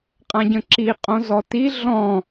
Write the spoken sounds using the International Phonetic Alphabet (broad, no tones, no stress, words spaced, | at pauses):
qʼãɟə̃ǁi qʼõzɔti ɮɔ̃